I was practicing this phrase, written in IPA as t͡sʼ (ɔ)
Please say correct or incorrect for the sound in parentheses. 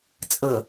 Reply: incorrect